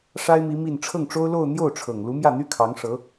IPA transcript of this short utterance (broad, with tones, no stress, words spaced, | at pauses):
ʂa˥ɪ̯mi˧˥ mi˥˧n ʈ͡ʂʰɤ˥˩ŋʈ͡ʂo˥ʊ̯lo˥˧ʊ̯ n̪jo˥˩ʊ̯ʈ͡ʂʰɤ˨˩ŋ lu˧˥mjä˥˩n̪y˥ kʰɑ˧˥ŋʂɤ˧˥